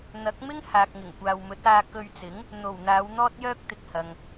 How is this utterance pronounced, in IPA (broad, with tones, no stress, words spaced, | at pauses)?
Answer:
n̪ɐ˨˥k̚mɪ˥ŋ haː˨k̚ŋɪ˨˩ŋkʷaː˨wmɵ˨˥t̚ aː˧kɵ˧ɥt͡sɪ˨˥ŋ | n̪o˨˩w n̪aː˨˧w n̪ɔː˥t̚jœː˥k̚t̪ɪ˧k̚hɐ˨ŋ